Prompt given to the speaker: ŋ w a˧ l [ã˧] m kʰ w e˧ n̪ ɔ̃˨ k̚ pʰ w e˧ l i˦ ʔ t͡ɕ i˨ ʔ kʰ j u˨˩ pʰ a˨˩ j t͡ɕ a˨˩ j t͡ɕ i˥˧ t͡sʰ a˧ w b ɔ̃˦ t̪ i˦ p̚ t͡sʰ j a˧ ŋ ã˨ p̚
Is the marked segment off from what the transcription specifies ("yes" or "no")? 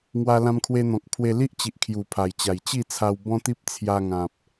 no